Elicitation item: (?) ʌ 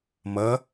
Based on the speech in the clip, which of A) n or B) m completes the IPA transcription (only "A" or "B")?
B